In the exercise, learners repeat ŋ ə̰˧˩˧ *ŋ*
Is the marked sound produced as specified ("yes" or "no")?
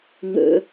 no